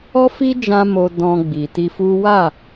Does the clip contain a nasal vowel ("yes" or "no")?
yes